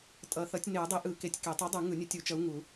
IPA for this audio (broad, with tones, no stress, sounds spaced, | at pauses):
tʼ ʌ˨˩˦ θ ʌ˨˥ tʲ n e˨˩˦ u̯ dˤ i˨˥ ʔ ɯ˨˩˦ k e˨˥ tʲ k e˨˩˦ tˤ ɯ˨˥ dˤ u˨˩˦ ŋ ɯ˨˩˦ nʲ ɯ˨˥ tʲ u˨˩˦ t͡ʃ ʌ˨˥ u̯ ŋ u˨˩˦